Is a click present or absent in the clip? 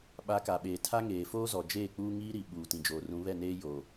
absent